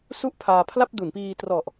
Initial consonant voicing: voiceless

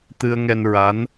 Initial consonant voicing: voiceless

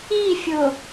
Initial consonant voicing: voiceless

